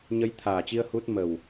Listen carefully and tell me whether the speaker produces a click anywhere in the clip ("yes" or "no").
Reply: no